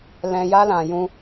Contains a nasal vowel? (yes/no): yes